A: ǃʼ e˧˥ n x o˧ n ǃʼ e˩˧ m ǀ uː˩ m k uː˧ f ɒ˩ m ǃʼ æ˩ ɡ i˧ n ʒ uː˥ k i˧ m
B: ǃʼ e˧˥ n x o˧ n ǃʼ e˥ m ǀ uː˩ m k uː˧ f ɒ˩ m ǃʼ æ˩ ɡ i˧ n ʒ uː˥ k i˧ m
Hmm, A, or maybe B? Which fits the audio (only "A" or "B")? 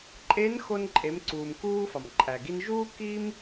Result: A